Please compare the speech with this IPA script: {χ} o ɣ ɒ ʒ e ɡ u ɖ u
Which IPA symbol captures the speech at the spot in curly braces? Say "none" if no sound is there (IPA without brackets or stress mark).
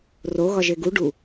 r